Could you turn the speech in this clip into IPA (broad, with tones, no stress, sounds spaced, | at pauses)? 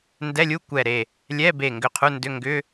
n d ɛ˧˥˧ lʲ u˧˥˧ kʷ ɛ˧˩ ɾ e˧˩ | lʲ ɛ˧˥˧ b e˧˩ ŋ ɡ ʏ˧˩ qʰ u˧˥˧ n d ʏ˧˥˧ ŋ ɡ ʏ˧˥˧